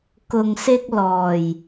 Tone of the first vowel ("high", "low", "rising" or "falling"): low